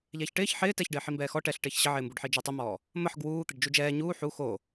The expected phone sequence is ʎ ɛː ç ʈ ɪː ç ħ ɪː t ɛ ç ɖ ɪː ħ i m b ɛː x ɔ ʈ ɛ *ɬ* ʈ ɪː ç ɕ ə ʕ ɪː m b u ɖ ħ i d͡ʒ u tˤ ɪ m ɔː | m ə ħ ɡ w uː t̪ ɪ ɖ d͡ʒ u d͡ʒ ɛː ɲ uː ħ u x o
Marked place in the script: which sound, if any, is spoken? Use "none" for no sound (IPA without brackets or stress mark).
ɬ